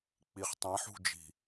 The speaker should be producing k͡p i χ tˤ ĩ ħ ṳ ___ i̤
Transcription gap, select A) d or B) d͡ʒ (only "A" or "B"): B